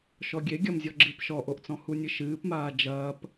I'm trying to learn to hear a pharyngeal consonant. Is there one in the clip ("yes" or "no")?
no